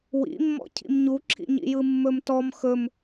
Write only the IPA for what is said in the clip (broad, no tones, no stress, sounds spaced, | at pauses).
w ḭ mː ɔ̰ cʰ ḭ m ɲ u ǁʰ ḭ ɲ ḭ j ɯ mː ɵ m t ɔ m x ɵ m